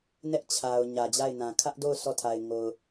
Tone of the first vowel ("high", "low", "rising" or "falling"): high